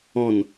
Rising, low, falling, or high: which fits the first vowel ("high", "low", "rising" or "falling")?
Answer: falling